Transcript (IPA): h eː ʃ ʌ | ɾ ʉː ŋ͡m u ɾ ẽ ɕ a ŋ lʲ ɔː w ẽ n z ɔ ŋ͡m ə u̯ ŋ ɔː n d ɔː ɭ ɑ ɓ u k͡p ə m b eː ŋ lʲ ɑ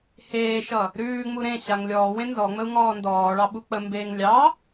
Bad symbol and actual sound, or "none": none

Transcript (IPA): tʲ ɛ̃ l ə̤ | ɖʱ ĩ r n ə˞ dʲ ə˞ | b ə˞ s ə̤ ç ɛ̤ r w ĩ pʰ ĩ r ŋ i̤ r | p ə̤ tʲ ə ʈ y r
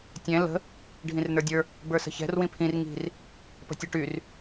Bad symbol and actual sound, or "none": none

